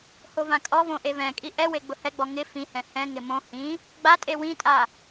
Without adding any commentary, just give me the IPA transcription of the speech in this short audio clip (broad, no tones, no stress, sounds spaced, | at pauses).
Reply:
h o v ã kʼ ɔ v õ ʔ e v ɛ̃ kʼ i ʔ ɛ w e ɡ͡b ʊ h ɛ ɡ͡b ɔ ŋ ɪ f ĩ h ɛ̃ h ɛ̃ ŋ ɪ m õ h ĩ | ɡ͡b a tʼ e w ĩ tʼ a